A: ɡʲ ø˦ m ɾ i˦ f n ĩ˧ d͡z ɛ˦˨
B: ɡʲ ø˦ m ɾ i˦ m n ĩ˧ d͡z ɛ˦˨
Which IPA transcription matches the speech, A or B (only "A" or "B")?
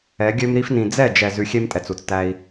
A